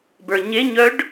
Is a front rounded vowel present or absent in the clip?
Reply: present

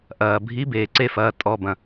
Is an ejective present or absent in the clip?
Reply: present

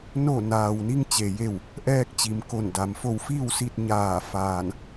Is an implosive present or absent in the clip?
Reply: absent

